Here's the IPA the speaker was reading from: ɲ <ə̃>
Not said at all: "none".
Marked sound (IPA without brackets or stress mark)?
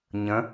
ə̃